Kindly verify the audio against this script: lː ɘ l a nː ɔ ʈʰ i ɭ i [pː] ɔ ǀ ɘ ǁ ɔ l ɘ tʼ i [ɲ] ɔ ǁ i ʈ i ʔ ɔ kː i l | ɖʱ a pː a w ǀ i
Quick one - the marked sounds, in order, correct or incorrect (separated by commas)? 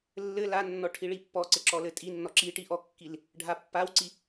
correct, incorrect